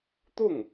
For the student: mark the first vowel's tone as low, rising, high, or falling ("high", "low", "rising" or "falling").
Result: falling